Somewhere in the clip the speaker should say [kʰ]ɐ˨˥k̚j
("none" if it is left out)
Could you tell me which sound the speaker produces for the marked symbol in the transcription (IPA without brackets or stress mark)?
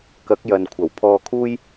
k